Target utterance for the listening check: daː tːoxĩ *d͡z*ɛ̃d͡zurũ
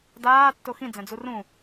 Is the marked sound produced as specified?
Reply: yes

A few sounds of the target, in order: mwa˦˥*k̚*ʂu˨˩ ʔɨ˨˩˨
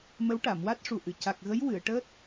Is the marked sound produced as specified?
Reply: no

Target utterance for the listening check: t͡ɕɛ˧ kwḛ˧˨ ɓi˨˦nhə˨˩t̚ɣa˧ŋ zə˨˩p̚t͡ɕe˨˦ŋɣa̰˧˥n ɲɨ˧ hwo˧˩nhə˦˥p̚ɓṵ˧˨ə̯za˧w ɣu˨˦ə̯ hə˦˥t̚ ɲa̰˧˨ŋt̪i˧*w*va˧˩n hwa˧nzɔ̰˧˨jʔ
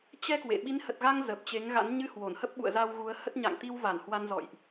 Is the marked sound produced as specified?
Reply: yes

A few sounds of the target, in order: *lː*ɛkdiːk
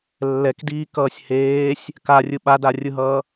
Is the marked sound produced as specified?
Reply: yes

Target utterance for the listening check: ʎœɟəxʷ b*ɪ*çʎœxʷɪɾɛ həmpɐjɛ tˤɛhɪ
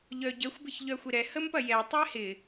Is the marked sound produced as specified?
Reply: yes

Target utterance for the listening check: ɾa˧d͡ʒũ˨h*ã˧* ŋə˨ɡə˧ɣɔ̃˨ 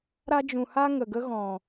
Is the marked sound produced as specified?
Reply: no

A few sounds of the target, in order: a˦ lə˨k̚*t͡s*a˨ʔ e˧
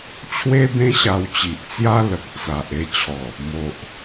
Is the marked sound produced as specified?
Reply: yes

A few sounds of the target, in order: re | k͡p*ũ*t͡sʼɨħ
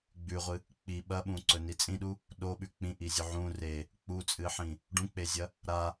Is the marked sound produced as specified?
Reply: no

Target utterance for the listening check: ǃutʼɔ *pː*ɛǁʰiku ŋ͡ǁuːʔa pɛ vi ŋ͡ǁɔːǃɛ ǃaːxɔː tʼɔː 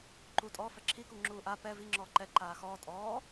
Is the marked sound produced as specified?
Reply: no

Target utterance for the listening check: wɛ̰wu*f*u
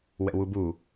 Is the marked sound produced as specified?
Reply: no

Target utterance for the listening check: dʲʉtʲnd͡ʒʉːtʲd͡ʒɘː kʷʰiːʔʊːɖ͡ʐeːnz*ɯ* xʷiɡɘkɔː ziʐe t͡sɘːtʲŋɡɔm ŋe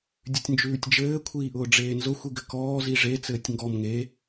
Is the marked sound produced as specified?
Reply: no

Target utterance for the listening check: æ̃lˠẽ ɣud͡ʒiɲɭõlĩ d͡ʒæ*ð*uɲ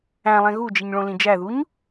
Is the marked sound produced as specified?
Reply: yes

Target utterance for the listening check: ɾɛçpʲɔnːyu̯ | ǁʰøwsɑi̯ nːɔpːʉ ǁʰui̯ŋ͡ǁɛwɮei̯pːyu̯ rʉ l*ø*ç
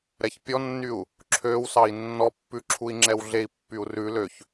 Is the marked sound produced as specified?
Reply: yes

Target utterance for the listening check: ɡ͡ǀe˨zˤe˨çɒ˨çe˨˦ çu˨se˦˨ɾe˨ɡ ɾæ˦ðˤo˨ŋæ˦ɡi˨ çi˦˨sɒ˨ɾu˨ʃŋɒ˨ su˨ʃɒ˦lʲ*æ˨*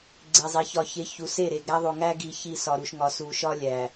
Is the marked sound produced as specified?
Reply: yes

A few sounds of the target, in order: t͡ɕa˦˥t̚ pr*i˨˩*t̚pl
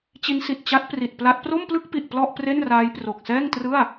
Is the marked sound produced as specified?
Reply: yes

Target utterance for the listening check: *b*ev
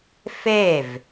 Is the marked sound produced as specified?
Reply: no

